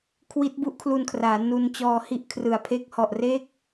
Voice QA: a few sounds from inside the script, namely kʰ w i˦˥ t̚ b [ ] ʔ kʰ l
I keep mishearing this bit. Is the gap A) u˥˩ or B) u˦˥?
B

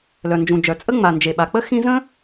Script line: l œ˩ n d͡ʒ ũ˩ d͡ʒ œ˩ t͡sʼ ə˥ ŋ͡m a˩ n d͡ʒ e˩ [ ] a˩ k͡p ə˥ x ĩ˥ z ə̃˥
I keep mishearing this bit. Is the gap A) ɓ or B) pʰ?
A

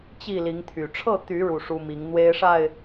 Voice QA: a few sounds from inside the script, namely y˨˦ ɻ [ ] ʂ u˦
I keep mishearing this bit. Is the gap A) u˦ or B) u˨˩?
B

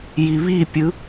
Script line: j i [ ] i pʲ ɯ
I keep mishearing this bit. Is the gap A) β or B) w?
A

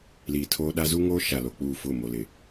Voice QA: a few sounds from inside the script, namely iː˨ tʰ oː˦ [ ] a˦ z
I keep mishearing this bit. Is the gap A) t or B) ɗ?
B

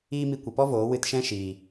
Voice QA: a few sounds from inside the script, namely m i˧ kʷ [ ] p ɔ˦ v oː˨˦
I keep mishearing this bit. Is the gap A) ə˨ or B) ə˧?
A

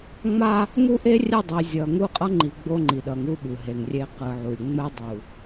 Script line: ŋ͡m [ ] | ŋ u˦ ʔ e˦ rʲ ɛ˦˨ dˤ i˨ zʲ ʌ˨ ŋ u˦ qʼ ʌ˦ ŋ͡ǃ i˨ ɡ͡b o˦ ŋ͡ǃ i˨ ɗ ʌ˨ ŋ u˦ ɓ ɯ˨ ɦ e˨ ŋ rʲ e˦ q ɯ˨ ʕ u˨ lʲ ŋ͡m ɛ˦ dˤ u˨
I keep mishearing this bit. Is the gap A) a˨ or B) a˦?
B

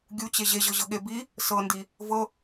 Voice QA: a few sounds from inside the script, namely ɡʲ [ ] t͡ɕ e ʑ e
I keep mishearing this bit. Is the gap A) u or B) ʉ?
A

